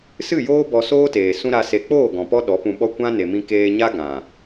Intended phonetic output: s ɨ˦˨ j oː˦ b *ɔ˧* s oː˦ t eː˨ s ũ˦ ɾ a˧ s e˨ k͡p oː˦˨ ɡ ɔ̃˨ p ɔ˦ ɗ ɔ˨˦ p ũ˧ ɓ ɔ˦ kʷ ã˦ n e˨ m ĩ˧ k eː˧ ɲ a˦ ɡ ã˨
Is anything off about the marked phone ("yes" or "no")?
no